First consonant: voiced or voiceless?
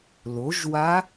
voiced